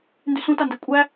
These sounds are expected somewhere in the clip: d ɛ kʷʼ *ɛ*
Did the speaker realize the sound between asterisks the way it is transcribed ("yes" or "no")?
no